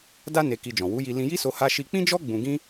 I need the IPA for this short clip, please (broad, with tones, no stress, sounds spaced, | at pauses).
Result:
d a˦ n e˧ k i˧ d͡ʒ ɔ̃˨ w u˨˦ j i˧ l ĩ˧ j i˦ s o˧ h a˧ ʃ i˧ k͡p ĩ˦ d͡ʒ ɔ˦ ɡ͡b ũ˧ ɡ ĩ˦